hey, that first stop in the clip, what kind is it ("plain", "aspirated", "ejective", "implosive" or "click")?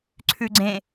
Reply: click